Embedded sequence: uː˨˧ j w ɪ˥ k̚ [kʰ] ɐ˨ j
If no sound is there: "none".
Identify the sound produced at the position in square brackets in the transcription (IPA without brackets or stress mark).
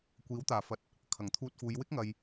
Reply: ŋ